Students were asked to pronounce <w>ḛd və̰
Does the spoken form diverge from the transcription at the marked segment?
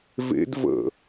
yes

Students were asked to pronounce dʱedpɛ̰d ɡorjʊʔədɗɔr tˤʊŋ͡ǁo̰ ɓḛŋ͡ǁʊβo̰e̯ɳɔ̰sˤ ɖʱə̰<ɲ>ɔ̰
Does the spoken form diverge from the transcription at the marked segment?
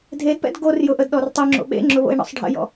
yes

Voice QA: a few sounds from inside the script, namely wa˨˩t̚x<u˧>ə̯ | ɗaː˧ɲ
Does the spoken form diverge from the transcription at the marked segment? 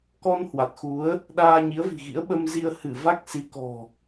yes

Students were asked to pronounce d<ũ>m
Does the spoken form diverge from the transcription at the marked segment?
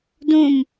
no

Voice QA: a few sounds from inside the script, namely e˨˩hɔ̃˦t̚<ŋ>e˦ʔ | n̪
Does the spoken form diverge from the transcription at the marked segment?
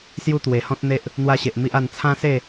yes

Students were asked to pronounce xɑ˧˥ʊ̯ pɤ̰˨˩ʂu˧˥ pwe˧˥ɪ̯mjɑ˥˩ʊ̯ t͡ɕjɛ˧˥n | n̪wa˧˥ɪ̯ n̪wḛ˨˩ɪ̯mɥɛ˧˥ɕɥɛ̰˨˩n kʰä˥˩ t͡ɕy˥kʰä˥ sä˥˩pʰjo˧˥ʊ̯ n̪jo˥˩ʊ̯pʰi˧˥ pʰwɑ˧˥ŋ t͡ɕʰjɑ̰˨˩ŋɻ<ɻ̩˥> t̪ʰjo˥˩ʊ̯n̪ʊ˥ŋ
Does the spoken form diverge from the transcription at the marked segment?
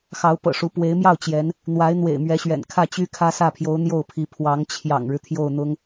yes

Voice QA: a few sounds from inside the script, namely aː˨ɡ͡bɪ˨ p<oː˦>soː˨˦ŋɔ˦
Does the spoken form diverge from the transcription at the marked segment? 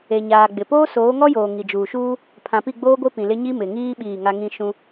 no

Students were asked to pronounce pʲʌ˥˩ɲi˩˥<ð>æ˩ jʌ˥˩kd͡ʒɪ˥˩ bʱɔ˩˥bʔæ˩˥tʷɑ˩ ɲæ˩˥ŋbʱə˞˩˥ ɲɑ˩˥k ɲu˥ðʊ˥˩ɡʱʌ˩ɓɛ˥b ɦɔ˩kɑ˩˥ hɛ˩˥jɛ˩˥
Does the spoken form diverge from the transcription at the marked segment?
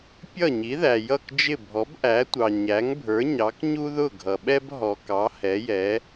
no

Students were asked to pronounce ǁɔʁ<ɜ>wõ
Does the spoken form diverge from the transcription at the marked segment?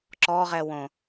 yes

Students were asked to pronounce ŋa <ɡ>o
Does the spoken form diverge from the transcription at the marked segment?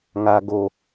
no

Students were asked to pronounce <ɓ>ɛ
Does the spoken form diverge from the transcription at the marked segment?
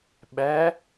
no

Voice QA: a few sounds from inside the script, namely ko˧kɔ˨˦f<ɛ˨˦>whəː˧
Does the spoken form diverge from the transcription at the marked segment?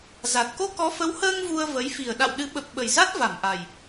yes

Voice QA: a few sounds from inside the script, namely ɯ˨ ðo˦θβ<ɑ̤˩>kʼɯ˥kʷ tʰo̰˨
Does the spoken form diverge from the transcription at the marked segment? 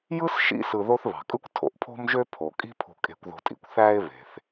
no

